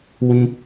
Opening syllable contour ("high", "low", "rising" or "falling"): high